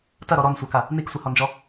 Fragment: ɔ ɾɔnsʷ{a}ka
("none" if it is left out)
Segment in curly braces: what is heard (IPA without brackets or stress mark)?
a